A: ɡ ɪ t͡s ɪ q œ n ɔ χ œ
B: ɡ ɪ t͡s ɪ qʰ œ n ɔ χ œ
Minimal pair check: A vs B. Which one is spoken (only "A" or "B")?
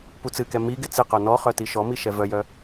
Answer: A